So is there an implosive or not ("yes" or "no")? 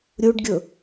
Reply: no